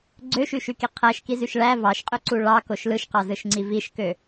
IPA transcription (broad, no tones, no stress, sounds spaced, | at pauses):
ɡ͡ǀ ø ʃ y ʃ y k i qʰ æ ʃ k i z y ʃ ɭ æ v ɑ ʃ qʼ ø ǀ u ɭ ɑ k o ʃ l ɯ ʃ q ɑ z ɯ ʃ ŋ͡ǀ i v i ʃ k ø